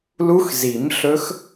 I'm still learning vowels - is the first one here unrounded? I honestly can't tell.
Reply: no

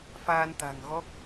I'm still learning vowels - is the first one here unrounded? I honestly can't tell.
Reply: yes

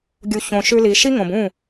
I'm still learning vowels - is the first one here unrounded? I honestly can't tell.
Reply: no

